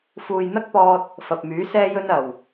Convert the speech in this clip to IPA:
f uː˨ j n̪ ɐ˥ k̚ p ɔː˧ t̚ | f ɐ˨ p̚ m yː˨˥ s ɛː˥ j ɵ˥ n ɐ˨˩ w

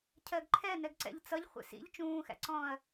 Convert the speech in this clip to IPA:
cʰ ɜ ɡ ǃʰ ɛ n ɛ ɡ ǀ ɛ̰ ʎ t͡s ʌ ʎ χʷ ɛ̰ s ḭ ʎ t͡ʃ ũː x æ̰ ǀ ɔ̃ː ɐ̯

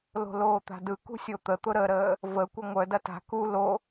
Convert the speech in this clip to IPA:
l o̤ l oː t̪ a̤ d ɯ k ṳ sʲ o t̪ ə t̪ ʊ ɾ ə ɾ əː | v ə kʷ ɐ ŋʷ œ d ɐ t a̤ k u l o

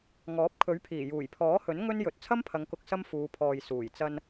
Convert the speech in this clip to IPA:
ŋ ɔː˨˥ p̚ kʰ ɵ˨˥ ɥ pʰ iː˨˩ j uː˨˩ j pʰ ɔː˨˥ h ɵ˨˥ n ŋ ɵ˥ n j ɵ˨ t̚ t͡sʰ ɐ˥ m pʰ ɐ˨˧ ŋ k ʊ˨ k̚ s ɐ˥ m f uː˨˧ pʰ ɔː˨ j s uː˨˩ j t͡s ɐ˧ n

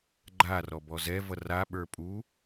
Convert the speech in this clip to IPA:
ɡ͡ǃ a r ɔ b ɔ z ɛ v ʌ r a ɓ ə˞ pʼ u

